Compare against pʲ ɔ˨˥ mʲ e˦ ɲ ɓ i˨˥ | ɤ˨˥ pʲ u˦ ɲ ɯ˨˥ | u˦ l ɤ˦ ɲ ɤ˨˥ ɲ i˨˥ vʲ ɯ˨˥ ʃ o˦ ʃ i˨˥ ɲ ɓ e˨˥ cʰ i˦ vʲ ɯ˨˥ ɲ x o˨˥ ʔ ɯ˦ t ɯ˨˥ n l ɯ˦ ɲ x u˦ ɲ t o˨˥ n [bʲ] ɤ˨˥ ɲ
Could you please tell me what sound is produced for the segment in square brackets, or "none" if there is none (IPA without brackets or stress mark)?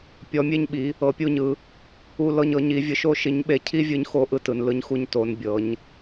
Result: bʲ